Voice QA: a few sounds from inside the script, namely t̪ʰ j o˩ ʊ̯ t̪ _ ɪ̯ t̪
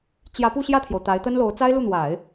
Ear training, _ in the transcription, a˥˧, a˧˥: a˧˥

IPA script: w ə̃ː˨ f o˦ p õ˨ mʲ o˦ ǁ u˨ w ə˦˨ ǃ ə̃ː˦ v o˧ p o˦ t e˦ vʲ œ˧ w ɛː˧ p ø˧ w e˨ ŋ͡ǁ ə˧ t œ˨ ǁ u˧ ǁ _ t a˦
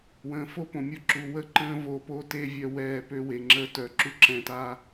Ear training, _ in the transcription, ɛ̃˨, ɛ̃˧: ɛ̃˧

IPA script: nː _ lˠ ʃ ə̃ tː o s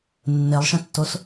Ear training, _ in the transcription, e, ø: e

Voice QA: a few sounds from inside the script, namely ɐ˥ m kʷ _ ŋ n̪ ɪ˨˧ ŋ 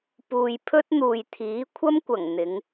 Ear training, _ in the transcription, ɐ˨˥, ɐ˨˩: ɐ˨˩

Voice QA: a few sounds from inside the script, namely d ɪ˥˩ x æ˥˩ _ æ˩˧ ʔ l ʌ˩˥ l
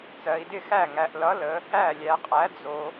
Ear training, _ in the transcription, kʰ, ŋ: ŋ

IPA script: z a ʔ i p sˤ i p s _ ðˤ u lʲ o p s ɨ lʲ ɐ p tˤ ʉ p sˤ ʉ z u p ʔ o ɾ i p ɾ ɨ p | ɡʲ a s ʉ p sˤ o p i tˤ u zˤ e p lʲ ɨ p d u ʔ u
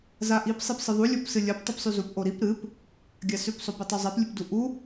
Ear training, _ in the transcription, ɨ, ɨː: ɨ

